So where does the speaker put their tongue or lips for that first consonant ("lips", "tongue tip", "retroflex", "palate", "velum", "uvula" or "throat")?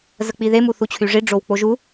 tongue tip